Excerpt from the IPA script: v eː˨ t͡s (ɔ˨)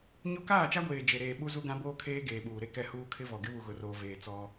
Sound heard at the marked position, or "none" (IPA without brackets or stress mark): ɔ˦